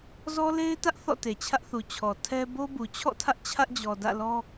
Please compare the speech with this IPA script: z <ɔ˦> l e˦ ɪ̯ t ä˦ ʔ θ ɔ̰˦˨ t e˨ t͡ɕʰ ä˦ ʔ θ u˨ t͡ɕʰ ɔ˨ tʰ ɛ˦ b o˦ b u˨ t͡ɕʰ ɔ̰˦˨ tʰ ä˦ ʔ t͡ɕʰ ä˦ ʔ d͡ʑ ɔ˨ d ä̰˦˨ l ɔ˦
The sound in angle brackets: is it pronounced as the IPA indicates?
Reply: yes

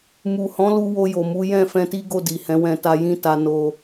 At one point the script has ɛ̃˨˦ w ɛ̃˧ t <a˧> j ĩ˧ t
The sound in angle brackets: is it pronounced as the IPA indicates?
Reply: yes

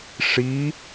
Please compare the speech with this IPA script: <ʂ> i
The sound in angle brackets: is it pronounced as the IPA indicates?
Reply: yes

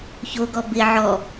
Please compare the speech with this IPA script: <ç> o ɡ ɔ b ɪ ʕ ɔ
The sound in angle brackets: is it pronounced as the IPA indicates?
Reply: yes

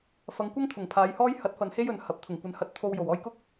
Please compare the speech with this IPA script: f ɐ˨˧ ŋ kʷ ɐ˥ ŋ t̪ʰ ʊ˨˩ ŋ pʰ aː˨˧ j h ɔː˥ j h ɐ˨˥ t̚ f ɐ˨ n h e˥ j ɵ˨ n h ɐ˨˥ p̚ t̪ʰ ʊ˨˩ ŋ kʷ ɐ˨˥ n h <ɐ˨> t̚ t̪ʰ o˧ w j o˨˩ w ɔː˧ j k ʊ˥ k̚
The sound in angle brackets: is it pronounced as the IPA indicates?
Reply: no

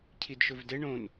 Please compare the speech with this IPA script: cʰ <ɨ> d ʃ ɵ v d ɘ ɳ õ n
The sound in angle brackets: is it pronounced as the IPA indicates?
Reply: no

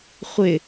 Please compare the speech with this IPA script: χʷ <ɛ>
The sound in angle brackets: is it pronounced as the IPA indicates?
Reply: no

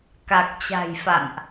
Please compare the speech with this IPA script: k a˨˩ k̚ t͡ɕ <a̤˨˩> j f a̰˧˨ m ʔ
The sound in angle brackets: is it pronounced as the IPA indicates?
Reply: yes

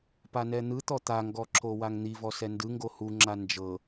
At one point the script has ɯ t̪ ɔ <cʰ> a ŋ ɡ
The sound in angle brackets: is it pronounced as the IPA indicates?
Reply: no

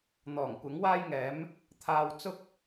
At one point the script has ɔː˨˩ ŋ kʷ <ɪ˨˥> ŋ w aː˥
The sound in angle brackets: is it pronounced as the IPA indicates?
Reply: yes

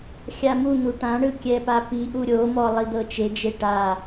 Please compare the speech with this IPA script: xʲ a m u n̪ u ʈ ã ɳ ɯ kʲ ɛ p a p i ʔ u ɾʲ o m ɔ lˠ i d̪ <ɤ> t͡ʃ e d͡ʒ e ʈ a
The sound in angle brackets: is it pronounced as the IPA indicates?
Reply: yes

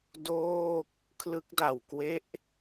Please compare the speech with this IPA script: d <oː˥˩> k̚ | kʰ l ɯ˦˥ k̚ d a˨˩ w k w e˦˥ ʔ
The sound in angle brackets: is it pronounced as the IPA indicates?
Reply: yes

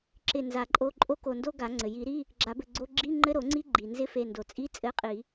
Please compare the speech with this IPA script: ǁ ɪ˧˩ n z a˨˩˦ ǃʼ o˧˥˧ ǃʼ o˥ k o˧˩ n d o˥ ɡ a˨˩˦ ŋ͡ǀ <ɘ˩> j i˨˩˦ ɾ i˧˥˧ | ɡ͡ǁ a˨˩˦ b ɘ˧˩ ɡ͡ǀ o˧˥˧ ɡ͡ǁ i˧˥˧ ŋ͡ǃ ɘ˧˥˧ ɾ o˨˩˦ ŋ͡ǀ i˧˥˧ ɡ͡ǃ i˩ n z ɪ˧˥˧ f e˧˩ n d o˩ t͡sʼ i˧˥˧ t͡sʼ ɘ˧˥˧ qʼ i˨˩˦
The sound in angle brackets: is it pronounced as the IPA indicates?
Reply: yes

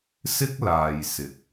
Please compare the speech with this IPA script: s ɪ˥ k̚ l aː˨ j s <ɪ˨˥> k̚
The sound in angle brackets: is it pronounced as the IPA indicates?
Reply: yes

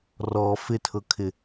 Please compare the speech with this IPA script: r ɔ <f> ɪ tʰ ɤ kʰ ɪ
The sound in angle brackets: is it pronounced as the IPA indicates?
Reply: yes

